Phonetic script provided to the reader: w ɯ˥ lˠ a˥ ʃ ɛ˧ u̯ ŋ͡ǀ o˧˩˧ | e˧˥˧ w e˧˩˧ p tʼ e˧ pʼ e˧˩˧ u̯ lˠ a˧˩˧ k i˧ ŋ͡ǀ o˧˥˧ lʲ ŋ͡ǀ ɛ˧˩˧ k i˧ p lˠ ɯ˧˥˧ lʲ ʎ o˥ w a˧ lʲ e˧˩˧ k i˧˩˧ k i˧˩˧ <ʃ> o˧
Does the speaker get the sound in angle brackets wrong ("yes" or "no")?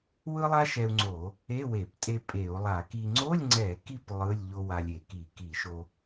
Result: no